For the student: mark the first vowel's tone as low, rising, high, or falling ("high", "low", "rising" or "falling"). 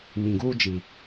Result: low